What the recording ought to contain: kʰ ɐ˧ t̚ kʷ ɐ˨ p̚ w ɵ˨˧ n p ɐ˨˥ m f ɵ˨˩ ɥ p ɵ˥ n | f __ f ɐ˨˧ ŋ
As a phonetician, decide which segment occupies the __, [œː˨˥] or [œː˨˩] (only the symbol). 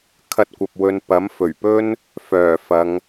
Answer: œː˨˩